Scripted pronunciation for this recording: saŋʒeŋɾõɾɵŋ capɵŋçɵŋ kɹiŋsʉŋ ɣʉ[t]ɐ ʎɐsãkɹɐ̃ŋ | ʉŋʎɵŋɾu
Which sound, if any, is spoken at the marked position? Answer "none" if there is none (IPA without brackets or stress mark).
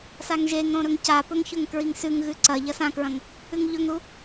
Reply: ǀ